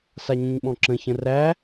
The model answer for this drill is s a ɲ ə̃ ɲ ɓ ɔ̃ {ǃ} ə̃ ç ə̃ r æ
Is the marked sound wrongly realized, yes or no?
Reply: yes